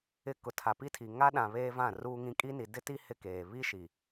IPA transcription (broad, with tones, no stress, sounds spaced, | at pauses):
ɪ˦ k ʊ˨ tʰ a˨ p i˦ tʰ i˨ ŋ a˦ ɗ ã˨ β eː˦ v ã˦˨ r uː˦ ŋ ĩ˦ kʼ i˦ n i˨ d ɪ˦ t i˦ h ɪ˦ k eː˨ β i˦ ʃ i˨